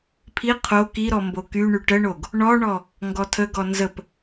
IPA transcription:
pʰi qʰo kiɾɔ mbokyɳy ʈəɳoɡ | ɳɔɳɔ | ŋɡɔtʰəɡɔ nzəp

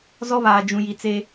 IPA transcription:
zɔ˦βaː˨ d͡ʒũ˨ji˨t͡seː˦

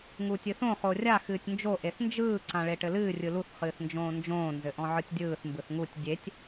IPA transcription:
ŋuːtʲɨθõ χorʲa xɨːtʲnd͡ʒo ʔeθnd͡ʒɯː ǀãɭeʈɘlɨː rʲɯluθ χɨːθnd͡ʒõːnd͡ʒõː nzɘʔɔ̃ʕɯtʲdʲɯːθ mbɯθŋutʲ dʲetʲ

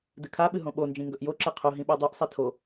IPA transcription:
dɨkʰaɓɨ ɦõɓond͡ʒĩ ŋɡɵʔjoǁe qʰo ɦĩɓadˤuʔsˤi tʰo

